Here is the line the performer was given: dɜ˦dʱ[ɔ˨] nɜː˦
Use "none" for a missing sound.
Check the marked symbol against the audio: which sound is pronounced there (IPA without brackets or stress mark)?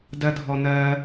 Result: ɔ˦